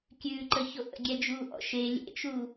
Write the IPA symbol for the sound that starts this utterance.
kʲ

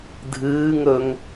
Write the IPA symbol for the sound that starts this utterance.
dʱ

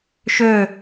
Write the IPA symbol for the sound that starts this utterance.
ʃ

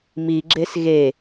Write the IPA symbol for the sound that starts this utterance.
m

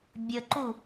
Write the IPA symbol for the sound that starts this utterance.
bʲ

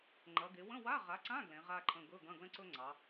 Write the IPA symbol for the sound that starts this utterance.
ŋ͡ǃ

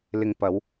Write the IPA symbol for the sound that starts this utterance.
l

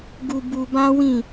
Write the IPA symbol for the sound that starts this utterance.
ɡ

